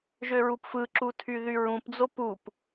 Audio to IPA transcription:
ʒøɹupfɯǁu tʰyðyɹũpd͡zo pup

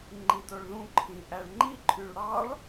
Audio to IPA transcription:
ŋ͡ǃidoɭðũǃʰĩ ʔæɭŋ͡ǃiǃʰyɭ ɽɑɭ

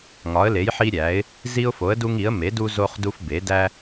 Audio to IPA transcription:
ŋɒ˩˥ə̯le˩˥jħi˦ ɾʲæ˩˥ɪ̯ | zi˦ʊ̯fo˩˥ə̯du˦ŋi˩˥ə̯ me˩˥du˦ zo˦χdu˦f be˩˥ dæ˦

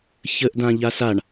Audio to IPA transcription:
çəʔ dãʎasaɳ

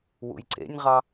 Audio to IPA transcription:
wṵjǀḛnʲʁɑ

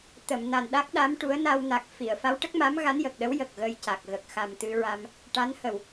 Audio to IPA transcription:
t̪ə˨˩˨mna˨˩n ɗa˦˥k̚ɗa˧˥mʈu˧˥ə̯ na˧wna˨˩k̚ fi˨˩˨ə̯fa˧˥wʈə˦˥k̚ma˧˥m ɣa˧˥njə˨˩k̚ɗə˧˥w jə˨˩k̚ɣə˧jca˨˩k̚ ɣə˨˩k̚xa˨˩m t̪ɨ˧ɹa˧m | ʈa˧˥nhə˨˩w

